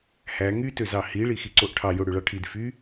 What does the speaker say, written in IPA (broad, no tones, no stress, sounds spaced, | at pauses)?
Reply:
h æ ŋ y t ø z ɑ h i ɭ i x i ǀ o ʔ ʈʰ ɑ j o ɽ ø ɭ ɑ ʈʰ i d f y